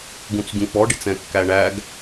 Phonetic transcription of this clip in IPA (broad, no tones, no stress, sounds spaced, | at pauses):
ɡ ũ t͡s ɟ ũ k͡p ɔ ɖ i t͡s ɛ̃ kː æ ɳ æ ɡ